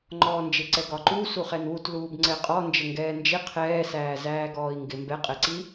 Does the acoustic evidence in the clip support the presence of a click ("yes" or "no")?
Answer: yes